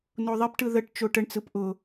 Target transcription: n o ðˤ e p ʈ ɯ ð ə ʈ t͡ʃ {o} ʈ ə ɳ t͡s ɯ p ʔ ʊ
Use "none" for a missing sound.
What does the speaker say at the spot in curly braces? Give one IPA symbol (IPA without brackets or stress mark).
o